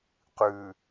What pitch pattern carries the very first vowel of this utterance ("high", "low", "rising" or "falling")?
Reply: low